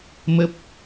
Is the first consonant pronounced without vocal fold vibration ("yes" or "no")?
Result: no